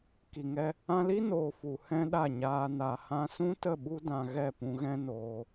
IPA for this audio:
k i˨ ŋ ɛ˧ | ã˧ l i˦ n oː˨ f u˨ h ɛ̃˦ ɗ a˦˨ ɲ aː˧ n a˨ h ã˧ s ũ˦ t ə˦˨ ɓ u˦ d ã˧ ɣ ɛ˦˨ p ũ˧ ɣ ɛ̃˦ n oː˧

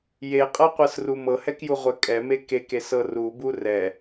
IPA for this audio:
j e qʼ ɤ qʷ ɤ s r u m ɤ h ɛ k j u ʁʷ ɛ kʼ ɛ m e k e k e s ɤ r u b u r ɛ

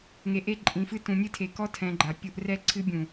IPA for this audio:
ŋ e˨ ʔ e˦ ǃʼ ĩ˨ f ɨ˦ t ũ˨ nʲ ɨ˦ tʰ e˨ k ɔ˦ tʰ ɛ̃˨ ɡ͡ǃ a˨ pʲ u˦ ʔ r ɛ˦ ǀʰ ɨ˦ bʲ ũ˨

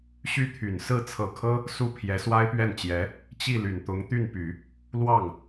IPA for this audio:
ɕ y˥˩ t̪ʰ y˨˩ n s ɹ̩˥˩ t͡sʰ ɤ˨˩ kʰ ɤ˥ | s u˥˩ pʰ j ɛ˧˥ s w a˥ ɪ̯ p ɥ ɛ˥˩ n t͡ɕ j ɛ˧˥ | t͡ɕ i˥˩ l y˨˩ n t̪ ʊ˧˥ ŋ t̪ y˥˩ n p y˨˩˦ | l w ɑ˥˩ ŋ

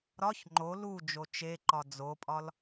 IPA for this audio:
ɾ ɒ ç ŋ͡ǃ o l u d͡ʒ o t͡ʃ e ǃ ɒ d͡z o pʼ ɒ l

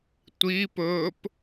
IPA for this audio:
tʷ i p ɵː p

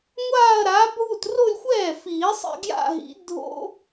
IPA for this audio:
ŋʷ aː˥˧ ɐ̯ ɾ aː˨˥ bʱ u˥˩ t r o˥˧ lʲ xʷ ɛː˥˩ f iː˨˩˦ sˤ ḭ˧ ɡ j a̰˥˧ ɦ ḭ˨˥ dʱ o̰˦˥

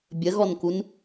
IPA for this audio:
bʲ ə ɣ ɔ n k u n

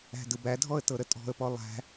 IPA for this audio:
æ̤ d ɯ b æ dʱ ɔ ə̯ t ɤ ɾ ə tʼ ɔ̤ ə̯ p ɔ lˠ æ̤

